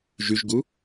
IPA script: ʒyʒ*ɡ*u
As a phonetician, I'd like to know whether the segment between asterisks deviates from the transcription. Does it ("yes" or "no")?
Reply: no